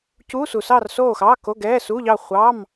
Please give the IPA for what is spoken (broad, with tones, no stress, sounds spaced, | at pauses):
c uː˧˥˧ s u˨ s ɑː˥˨ r s oː˥˨ x ɑː˧˥˧ k o˧˥˧ ɡ ɛː˧˥˧ s uː˧˥˧ ʎ ɑ˥˨ χʷ ɑ˧˥˧ m